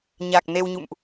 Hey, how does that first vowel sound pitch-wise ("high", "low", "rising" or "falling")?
low